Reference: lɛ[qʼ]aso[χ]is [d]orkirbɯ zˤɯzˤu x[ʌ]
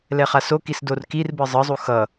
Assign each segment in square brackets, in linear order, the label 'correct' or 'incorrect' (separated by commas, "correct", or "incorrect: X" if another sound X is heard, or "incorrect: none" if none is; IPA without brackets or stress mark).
incorrect: χ, incorrect: k, correct, correct